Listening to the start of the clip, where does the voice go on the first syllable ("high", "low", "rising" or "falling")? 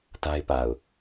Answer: high